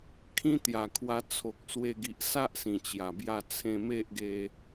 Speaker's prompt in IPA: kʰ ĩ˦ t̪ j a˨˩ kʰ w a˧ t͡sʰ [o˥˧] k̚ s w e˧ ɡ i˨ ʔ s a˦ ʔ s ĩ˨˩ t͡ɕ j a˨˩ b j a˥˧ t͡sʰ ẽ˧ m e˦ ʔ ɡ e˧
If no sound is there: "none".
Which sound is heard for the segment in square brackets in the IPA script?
o˨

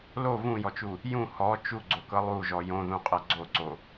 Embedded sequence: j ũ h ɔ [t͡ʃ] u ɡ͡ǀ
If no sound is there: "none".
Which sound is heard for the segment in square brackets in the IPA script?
t͡ʃ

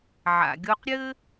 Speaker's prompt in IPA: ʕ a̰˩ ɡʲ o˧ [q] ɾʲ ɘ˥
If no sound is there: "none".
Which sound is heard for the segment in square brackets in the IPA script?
q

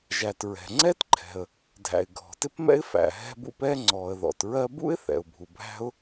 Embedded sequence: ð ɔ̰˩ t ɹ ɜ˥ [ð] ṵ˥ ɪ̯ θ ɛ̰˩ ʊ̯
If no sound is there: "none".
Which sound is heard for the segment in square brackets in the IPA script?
b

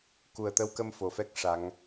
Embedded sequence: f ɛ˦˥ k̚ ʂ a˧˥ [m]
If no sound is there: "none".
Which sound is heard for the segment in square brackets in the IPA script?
ŋ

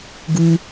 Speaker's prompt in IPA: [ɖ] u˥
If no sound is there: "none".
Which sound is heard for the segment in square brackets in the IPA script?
ɡ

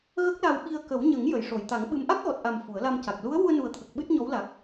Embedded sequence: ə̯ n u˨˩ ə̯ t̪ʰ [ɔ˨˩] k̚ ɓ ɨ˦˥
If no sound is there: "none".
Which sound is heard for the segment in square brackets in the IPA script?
ə˨˩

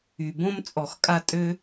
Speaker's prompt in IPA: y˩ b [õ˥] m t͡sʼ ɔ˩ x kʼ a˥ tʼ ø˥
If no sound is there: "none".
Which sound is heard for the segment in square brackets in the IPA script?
õ˥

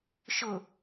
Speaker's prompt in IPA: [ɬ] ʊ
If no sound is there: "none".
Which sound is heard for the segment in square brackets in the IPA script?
ʃ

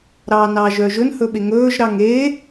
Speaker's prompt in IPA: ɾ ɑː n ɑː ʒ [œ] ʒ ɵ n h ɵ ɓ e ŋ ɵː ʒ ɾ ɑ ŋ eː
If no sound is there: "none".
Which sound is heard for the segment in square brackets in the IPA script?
œ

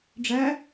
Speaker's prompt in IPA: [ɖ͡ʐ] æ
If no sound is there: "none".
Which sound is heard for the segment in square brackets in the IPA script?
ɖ͡ʐ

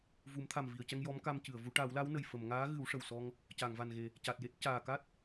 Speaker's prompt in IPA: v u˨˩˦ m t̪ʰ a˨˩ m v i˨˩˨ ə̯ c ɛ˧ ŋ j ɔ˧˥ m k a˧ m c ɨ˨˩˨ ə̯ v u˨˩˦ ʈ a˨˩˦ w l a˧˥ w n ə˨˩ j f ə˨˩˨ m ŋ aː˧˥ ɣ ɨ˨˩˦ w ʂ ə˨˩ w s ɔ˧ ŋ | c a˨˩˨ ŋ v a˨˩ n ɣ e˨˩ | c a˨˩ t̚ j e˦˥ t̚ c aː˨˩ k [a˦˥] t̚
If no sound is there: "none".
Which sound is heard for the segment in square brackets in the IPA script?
a˦˥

